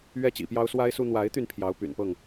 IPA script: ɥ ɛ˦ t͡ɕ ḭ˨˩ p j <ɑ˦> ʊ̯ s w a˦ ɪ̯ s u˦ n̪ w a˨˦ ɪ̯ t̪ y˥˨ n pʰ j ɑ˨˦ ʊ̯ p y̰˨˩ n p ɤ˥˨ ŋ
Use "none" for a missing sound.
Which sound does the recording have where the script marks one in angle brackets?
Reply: ɑ˦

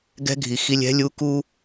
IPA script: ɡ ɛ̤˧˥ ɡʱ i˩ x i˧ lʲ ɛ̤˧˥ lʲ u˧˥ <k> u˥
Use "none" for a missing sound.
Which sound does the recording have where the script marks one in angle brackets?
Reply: k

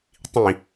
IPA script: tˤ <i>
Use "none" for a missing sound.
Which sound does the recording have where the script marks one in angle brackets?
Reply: ĩ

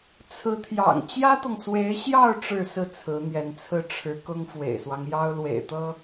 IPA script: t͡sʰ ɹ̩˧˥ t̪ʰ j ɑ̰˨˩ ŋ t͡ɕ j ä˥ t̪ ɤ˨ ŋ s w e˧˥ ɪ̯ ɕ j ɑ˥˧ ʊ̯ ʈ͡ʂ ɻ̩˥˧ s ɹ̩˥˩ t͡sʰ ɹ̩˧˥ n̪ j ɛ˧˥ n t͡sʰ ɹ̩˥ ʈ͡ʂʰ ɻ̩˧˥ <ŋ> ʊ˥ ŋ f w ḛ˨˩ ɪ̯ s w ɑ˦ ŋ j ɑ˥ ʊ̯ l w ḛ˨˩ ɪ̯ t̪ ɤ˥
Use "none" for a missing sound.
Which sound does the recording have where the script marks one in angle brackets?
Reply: k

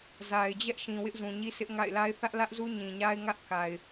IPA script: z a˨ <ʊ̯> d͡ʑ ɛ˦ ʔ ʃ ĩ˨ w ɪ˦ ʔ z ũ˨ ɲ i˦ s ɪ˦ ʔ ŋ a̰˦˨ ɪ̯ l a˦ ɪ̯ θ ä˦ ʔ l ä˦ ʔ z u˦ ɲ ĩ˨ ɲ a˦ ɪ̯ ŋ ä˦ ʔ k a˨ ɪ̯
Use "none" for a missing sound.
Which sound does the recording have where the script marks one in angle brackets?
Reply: ɪ̯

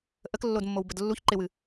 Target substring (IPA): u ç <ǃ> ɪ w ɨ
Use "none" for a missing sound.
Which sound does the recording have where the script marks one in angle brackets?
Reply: ǃ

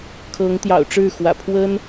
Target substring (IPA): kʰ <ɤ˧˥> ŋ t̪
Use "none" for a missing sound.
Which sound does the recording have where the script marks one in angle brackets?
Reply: ɤ˧˥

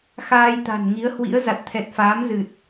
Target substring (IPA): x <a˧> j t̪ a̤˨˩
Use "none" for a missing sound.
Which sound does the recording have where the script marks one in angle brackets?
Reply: aː˧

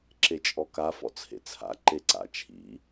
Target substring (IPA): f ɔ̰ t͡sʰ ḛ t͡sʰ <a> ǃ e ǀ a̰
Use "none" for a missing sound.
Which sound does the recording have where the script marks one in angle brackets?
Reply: a̰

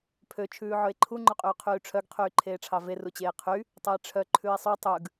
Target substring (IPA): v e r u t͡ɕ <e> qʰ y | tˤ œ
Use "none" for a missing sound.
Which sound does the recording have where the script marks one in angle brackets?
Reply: eː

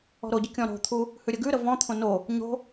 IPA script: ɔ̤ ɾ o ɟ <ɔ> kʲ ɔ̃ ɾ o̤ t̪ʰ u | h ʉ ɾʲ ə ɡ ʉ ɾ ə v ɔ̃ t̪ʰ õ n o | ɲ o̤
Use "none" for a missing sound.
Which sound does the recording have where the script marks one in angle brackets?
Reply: ə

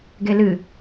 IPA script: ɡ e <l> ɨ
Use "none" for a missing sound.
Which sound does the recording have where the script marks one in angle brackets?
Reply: l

